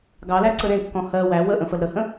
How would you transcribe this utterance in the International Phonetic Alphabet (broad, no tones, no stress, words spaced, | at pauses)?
ɡɑlæǀə ɾẽkːɔ̃ hɜ wæ wəʔə̃fəl ɾəhə̃